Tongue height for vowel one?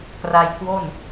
low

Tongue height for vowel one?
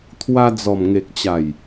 low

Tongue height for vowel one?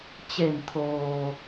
mid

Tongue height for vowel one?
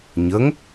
mid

